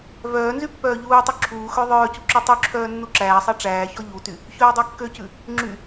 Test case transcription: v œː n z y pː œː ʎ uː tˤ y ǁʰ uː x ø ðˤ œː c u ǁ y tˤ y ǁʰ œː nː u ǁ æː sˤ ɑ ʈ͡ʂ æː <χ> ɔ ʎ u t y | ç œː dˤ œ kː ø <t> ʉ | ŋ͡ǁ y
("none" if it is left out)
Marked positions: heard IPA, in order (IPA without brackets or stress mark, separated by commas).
ç, c